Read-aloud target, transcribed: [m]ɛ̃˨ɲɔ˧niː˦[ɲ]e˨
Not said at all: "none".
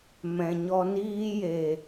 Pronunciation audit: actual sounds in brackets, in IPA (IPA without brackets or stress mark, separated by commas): m, j